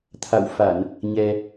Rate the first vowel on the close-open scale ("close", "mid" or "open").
open